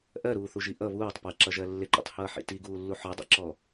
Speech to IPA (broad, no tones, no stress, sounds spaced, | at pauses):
ʔ ɜ ɾ uː θ u ʒ i ʔ ʌ β uː tˤ p ɜ ǁ ʌ ʒ ɜ lː ɪ ǃ ḭ tˤ h ʌː ħ ḭ t i ɡ uː lː u ħ ɔ dˤ ḭ ǁ ɔ